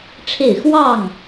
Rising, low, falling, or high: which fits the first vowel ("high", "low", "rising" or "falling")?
falling